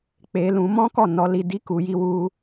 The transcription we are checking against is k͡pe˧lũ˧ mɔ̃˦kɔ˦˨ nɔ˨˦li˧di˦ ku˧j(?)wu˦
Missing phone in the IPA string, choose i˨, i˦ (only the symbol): i˦